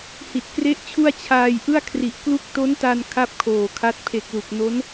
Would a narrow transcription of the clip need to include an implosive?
no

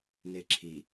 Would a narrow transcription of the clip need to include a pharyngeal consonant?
no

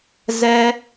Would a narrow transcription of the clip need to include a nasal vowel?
no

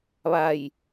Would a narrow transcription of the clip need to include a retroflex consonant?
no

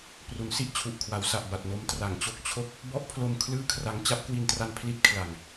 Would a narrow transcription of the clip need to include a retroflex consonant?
no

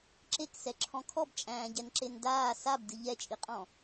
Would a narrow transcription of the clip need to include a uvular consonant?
yes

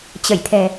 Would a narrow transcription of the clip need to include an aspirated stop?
yes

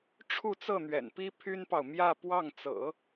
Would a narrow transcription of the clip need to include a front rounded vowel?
yes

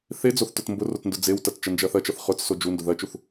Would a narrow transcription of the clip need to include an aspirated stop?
no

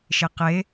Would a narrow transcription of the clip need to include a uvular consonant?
yes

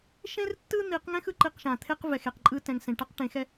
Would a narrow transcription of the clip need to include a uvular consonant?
yes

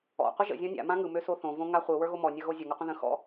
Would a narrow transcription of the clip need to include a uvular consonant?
yes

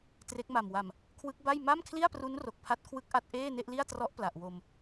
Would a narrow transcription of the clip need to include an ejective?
no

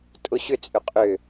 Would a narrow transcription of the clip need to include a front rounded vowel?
yes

